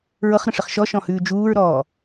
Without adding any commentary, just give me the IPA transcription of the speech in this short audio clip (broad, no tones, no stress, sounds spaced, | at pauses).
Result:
ɹ ɤ χ ɾ ə̃ ʂ ə χ ʃ ɔ ʃ ɔ̃ h ʉː d͡ʒ uː ɹ ɾ ɔː